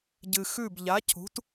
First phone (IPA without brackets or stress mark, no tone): ɟ